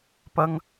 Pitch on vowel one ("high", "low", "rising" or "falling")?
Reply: high